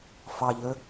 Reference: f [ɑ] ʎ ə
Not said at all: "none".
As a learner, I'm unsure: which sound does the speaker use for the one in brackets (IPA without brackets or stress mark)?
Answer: ɑ